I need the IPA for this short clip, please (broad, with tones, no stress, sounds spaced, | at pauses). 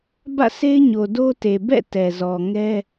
b ä̰˦˨ s e˦ ɪ̯ ɲ o˨ d o˦ t e˨ b ɛ̰˦˨ t ɛ˨ z ɔ˨ ŋ ɛ˦